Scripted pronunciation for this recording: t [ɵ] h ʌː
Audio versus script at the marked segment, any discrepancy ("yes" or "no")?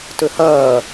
no